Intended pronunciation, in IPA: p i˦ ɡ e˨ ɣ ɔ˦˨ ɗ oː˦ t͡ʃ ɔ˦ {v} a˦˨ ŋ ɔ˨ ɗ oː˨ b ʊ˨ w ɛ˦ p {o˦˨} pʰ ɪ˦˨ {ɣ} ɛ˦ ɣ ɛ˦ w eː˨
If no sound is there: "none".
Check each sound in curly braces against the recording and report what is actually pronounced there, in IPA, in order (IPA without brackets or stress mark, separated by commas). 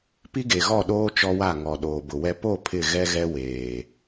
w, o˦˨, ɣ